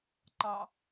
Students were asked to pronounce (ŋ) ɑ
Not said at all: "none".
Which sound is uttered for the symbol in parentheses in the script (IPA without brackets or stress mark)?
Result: ǃ